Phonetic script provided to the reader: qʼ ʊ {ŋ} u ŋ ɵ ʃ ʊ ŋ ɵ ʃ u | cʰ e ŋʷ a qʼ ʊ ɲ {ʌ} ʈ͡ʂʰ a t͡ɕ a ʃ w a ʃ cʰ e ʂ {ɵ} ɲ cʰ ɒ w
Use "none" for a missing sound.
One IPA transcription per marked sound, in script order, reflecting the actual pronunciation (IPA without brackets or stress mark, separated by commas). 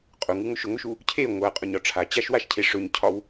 ŋ, ɒ, ɵ